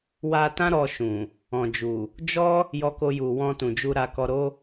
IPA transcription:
w a˧ t ã˦ ɾ ɔ˧ ʃ ũ˨ | ɔ̃˨ d͡ʒ u˨ | d͡ʒ ɔ˦ | j ɔ˧ k o˧ j u˨ w ɔ̃˧ t ũ˨ d͡ʒ u˧ ɾ a˧ k ɔ˧ ɾ o˦

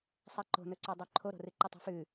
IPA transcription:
sˤ ɛ ǃ o̤ n ɵ ǀ o dˤ o ǃʰ o ɾ o̤ r ɨ ǃ ɨ tˤ o̤ f ʉ

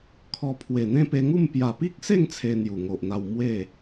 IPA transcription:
kʰ ɔ˧ pʰ w e˨˩ n̪ ẽ˦ p e˧ ŋ u˥˧ m p j a˨˩ p i˦ k̚ s e˥˧ ŋ t͡sʰ e˧ n̪ j u˨˩ ŋ o˨ ʔ n̪ a˧ w m w e˥˧

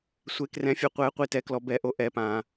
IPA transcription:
sʷ e˨˩˦ k r ɛ̃˨˩˦ fʲ œ˨˩˦ qʷ ɛː˨˩˦ qʷ i˨ t ɛ˨˩˦ k l ɔ˨ b ɛ˨˩˦ ʔ o˨ ʔ ɛ˨˩˦ p ãː˨

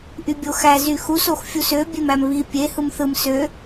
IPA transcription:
ʔ y bʲ o x æ z y x u s o x fʲ u s ø bʲ e m æ m β i pʲ e h ɯ m θ ɯ m s ø

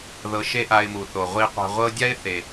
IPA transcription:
ð ɤ˧ ʃ e˥ ʔ a˧ ɪ̯ m u˩ θ o˩ ʁʷ i˧ qʷ a̤˧ ʁʷ ɤ˥ dʲ a˥ ɪ̯ θ e˩

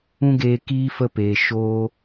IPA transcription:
ũ˧ ɡ eː˨ k iː˧ f ə˧ p eː˨ ʃ oː˧

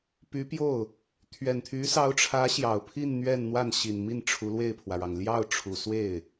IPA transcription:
p y˧˥ p j o˥˩ ʊ̯ | t̪ʰ ɥ ɛ˨˩ n t̪ʰ y˧˥ s ɑ˧˥ ʊ̯ ʈ͡ʂʰ ä˧˥ ɕ j ɑ˨˩ ʊ̯ pʰ i˥˧ n n̪ ɥ ɛ˥˧ n n̪ w a˥˩ n ɕ i˨˩ n m i˥˩ n ʈ͡ʂʰ u˧˥ l w e˥˩ ɪ̯ pʰ w ä˩ ɻ ɑ˩ ŋ l j ɑ˥˩ ʊ̯ ʈ͡ʂʰ u˨˩ s w e˥˩ ɪ̯

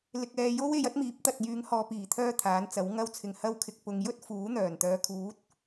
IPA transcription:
l ɪ˨ k̚ ɛː˨ j o˥ w e˧ j ɐ˥ t̚ m iː˨˥ p̚ t̪ ɐ˨ t̚ j yː˨˧ ŋ h ɔː˨ p iː˨˩ t̪ʰ œː˥ t̪ʰ aː˨˥ n t͡s ɐ˨˥ w ŋ ɐ˥ w t͡sʰ ɪ˨˩ ŋ h ɐ˧ w kʰ ɪ˨ k̚ p ʊ˨ ŋ j ɵ˥ t̚ f uː˨˥ n̪ œː˨˩ n t̪ œː˨˧ kʰ uː˨˥ t̚

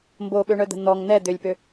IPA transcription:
m b o ɓ ø ɳ œ d̪ ə̤ n̪ ɔ ŋ n̪ ɛ d̪ ø lʲ p ø

